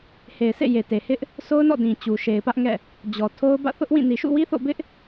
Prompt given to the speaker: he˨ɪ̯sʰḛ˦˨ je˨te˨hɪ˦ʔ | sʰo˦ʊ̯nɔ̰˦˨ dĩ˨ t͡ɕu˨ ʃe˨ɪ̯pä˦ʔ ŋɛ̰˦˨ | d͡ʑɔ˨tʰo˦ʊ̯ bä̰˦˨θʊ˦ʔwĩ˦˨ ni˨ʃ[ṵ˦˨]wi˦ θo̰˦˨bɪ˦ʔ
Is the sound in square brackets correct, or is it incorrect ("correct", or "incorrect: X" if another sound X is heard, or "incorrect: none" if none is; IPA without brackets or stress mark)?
correct